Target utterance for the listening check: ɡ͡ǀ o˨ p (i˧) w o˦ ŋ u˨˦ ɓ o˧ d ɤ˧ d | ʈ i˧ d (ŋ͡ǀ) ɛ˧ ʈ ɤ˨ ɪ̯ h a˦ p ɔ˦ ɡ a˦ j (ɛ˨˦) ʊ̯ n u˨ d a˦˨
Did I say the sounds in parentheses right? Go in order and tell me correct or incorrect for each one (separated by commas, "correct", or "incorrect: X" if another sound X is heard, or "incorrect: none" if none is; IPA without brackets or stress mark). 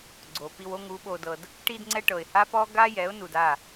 correct, correct, correct